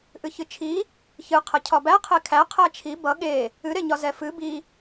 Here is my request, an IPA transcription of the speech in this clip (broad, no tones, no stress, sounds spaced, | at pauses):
ʔ ɨ ç ɨ t͡ʃʰ i | ç ɨ qʰ ə cʰ ɒ b æ qʰ e kʰ æ qʰ æ t͡ʃʰ i b ʌ ɠ e | ɨ ɾ e ɲ ɒ z ɛ f ɨ b i